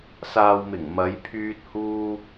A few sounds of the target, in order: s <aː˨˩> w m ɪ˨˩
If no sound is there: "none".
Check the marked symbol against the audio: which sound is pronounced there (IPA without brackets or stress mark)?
aː˨